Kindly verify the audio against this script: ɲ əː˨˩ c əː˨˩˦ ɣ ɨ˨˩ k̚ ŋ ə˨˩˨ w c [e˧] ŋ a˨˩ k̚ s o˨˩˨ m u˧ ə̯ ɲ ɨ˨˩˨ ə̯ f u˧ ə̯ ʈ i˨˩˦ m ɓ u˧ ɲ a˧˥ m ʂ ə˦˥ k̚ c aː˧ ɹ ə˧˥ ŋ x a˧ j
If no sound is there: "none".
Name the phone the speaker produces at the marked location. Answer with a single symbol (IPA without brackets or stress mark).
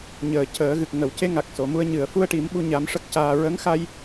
e˧